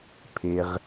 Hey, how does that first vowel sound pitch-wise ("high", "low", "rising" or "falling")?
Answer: low